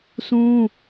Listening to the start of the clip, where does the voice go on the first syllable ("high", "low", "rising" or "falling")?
high